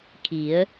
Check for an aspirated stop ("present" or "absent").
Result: present